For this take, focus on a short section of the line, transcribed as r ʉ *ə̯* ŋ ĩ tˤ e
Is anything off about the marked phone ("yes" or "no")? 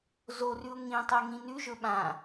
yes